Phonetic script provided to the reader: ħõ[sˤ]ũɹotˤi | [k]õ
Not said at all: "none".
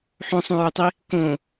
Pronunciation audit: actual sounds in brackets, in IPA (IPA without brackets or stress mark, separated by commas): sˤ, k